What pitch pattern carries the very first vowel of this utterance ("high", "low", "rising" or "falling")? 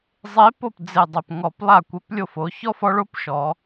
rising